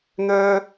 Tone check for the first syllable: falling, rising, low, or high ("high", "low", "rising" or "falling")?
high